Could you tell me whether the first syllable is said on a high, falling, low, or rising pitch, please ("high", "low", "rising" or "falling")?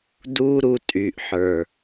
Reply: high